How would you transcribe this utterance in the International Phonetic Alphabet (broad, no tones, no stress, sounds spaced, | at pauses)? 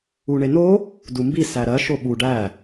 u ɳ e n o | d u m b i s æ ɾ ɜ ʃ o ɓ u ɖ æ